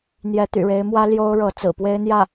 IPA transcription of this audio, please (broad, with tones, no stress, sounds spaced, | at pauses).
n̪ j ɛ˧˥ t̪ y̰˨˩ ɻ e˧˥ ɪ̯ m w ä˥ l j o˥ ʊ̯ ɻ ɤ˧˥ t͡s ɹ̩˨˩ p w e˥ ɪ̯ n̪ j ä˥˩